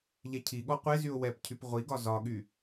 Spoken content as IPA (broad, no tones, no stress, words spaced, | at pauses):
ʎɛcʰiɠɔ qʷezyʊ̯ wɛpcʰyp ʁʷiɡɒ zɒɠy